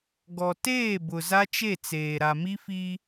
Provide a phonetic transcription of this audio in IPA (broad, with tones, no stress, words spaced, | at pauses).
ɡɔ˨teː˦˨bʊ˨ za˦t͡ʃe˦˨t͡seː˨ ɾa˨mi˦fi˦